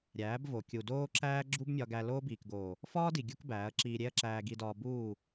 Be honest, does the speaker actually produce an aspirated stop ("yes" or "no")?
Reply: no